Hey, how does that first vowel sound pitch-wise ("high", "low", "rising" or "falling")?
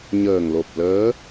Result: low